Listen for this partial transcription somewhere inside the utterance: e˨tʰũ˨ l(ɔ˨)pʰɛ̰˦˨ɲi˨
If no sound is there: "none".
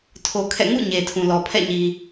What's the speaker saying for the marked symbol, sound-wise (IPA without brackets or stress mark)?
ɔ˨